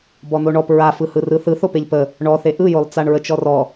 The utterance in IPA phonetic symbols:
b ɔ n̪ o ɳ ɔ p ɹ a f ɯ h ɯ r ɯ θ ɯ θ o p e ʎ p ə | ɳ ɔ θ e ʔ ɯ j o lˠ t͡s a ɳ ɹ ə t͡ʃ ɔ r ɔ

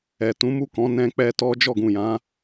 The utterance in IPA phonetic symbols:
ɛ˨ t ũ˨˦ m u˦˨ k ɔ̃˨˦ n ɛ̃˧ k͡p ɛ˧ t ɔ˦ d͡ʒ ɔ˦˨ ɡ ũ˨ j ã˨˦

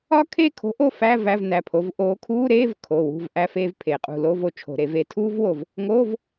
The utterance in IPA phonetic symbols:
ɒ˥ kʰ e˦˨ kʰ o̤˨˦ ʔ o˦˨ f æ˧˥˧ v æ˧˥˧ v n æ˩˧˩ pʰ o˨˦ v ʔ oː˨˦ kʰ uː˧˥˧ ɾ eː˧˥˧ v kʰ o˩˧˩ w ṳ˦˨ v ʔ æ˥ f eː˥ v pʰ e˧˩˧ qʼ ṳ˦˨ l o˧˥˧ v o˦˨ t͡ʃʰ o̤˧˩˧ ɾ e˧˩˧ v eː˦˨ tʰ uː˥ v w o˦˨ v | ŋ oː˧˥˧ v

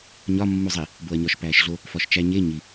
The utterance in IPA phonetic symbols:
ɲ ɒ mː u zˤ i | b o ɐ̯ ɲ ɒ ʃ p æː ʃ ɮ o | f ɒ ʃ t͡ʃ æ ɲ e ɲ i

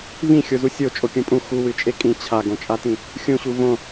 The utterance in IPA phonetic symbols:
v ĩ xʲ o z u sʲ o t͡ʃʼ o kʲ ũ pʼ ũ x u w ɨ t͡ʃʼ e kʼ ĩ t͡ɕʰ a ɡ õ t͡ʃʼ a t ĩ | xʲ ũ ɕ u v õ

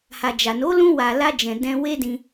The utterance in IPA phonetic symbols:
h a˨ d͡ʒ a˨ n o˨˦ l ũ˧ w a˨ l a˧ d͡ʒ ɛ̃˨ d ɛ̃˧ w e˦ d ĩ˧

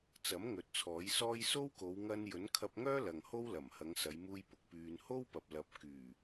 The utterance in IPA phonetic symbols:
t͡s ɐ˨˥ m ŋ ɵ˨˥ t̚ t͡sʰ ɔː˨˥ j s ɔː˥ j s o˥ w k o˨˧ w ŋ ɐ˧ n j ɵ˨˥ n kʰ ɐ˧ p̚ ŋ œː˥ l ɐ˨ ŋ h o˥ w l ɐ˨˩ m h ɐ˨˧ ŋ s ɐ˨˧ j m uː˧ j p ʊ˨˥ k̚ p yː˧ n h o˥ w p ɐ˨ p̚ l ɐ˨˥ p̚ k yː˨˩

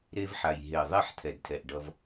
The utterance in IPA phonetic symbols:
ɾ e˧ v ħ a˨ j ɦ e˨ ðˤ e˦˨ ħ t̪ʰ ɛ˨ d tʰ ɛ˨ ʔ ɖ ʌ˧ v

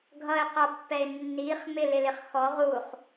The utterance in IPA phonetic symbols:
ɡʱ ʌ ɪ̯ q ʌ pː ɛ ɪ̯ nː i χ m ɪ l ɪ l ɪ χ x ɔ ʁ u χ

